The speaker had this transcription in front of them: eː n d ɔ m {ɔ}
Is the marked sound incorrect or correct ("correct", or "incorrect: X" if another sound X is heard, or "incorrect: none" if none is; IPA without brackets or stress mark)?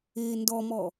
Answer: correct